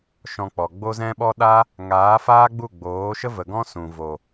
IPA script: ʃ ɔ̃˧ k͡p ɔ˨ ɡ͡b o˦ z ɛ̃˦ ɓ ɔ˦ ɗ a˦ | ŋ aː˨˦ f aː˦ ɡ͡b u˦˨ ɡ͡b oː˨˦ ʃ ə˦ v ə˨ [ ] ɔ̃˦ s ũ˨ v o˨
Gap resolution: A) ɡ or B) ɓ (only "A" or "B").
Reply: A